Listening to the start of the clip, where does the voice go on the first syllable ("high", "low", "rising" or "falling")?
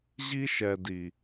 high